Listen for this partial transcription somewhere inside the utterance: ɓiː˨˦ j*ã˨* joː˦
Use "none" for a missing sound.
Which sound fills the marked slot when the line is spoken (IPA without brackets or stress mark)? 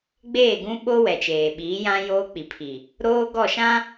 ã˦